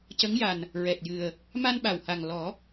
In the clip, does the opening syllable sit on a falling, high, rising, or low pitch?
rising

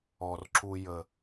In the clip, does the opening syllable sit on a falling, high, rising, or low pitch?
low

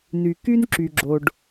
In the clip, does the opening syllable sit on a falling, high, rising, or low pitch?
low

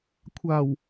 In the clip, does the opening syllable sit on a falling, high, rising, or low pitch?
low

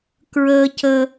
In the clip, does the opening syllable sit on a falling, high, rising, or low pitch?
low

